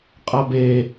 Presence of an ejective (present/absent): present